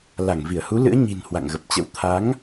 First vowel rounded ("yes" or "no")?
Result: no